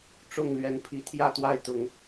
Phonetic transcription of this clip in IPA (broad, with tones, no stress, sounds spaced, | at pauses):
ʈ͡ʂ ʊ˥˨ ŋ l ɥ ɛ˨˦ n pʰ i˨˦ t̪ʰ j ä˥˨ t̪ w a˦ ɪ̯ t̪ ʊ˨˦ ŋ